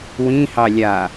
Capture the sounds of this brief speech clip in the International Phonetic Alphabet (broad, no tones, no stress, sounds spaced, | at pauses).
w ĩ h ɑ lʲ a